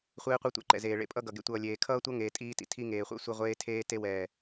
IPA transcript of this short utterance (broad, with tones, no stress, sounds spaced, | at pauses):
χʷ eː˦ qʷ ʌ˦ tʷ ɛ̰˧ ǃ ɛ̰˨ z eː˨ ɭ ḛ˧ pʼ ʌ˦ ɡ ʌ˨ ɡ ḛ˧ tʷ ʌː˨ lʲ eː˨ kʰ ʌː˦ tʷ ʌ˦ ŋ eː˨ tʼ iː˧ t ḭ˨ tʰ i˧ ŋ eː˨ χʷ ɛ̰˦˨ sʷ e˧ ʁʷ eː˧ tʰ eː˧ t e˧ w ɛː˨